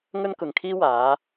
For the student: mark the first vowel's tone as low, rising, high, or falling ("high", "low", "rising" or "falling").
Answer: high